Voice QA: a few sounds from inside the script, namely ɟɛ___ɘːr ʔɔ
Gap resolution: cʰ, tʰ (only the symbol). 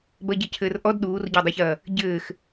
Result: cʰ